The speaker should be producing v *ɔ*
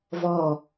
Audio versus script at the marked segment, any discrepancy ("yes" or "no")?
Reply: no